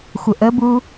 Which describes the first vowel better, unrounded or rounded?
unrounded